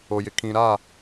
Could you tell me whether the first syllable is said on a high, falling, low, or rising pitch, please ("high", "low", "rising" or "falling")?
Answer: low